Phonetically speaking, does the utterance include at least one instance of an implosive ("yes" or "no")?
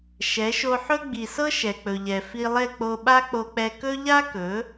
yes